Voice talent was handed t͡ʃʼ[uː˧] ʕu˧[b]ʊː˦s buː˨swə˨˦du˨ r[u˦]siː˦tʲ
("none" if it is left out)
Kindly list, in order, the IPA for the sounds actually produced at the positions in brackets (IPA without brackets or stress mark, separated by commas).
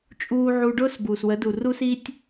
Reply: uː˧, ɖ, u˦